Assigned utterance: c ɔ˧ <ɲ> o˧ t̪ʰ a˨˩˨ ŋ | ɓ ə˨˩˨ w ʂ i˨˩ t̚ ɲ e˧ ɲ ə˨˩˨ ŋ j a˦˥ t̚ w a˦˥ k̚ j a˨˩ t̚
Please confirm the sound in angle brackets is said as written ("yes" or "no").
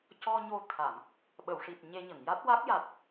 yes